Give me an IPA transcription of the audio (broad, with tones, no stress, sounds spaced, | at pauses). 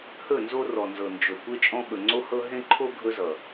h ɵ˦˨ n z o˦ r ɔ˨ n z ɤ˨ n d͡ʒ ɵ˨ kʷ e˦ t͡ʃʼ ɔ̃˦ ɓ ɵ˨ ŋ͡ǀ o˦ h ɤ˦ ɦ ẽ˦ ǃʰ o˦ ɡʱ ɵ˦ z ʌ˨